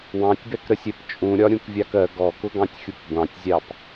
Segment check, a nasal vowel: present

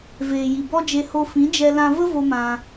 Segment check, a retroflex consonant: absent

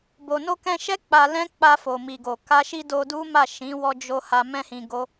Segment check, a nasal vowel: present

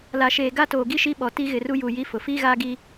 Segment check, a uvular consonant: absent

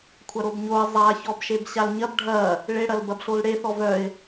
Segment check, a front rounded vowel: present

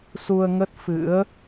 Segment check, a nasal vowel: absent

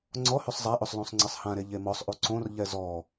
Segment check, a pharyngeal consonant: absent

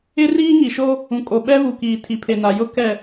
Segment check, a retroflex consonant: absent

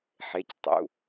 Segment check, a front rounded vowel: absent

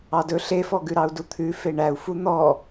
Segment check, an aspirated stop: present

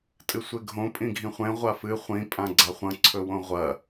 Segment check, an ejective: present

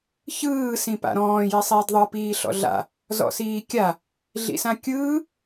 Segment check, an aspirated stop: absent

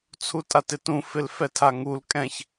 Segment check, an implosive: absent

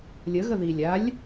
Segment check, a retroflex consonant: absent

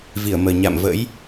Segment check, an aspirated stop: absent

